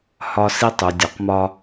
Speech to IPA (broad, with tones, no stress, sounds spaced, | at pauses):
h ɒ˦ s i˦ tˤ u˨ dʲ ɔ˨˦ q m ɒ˦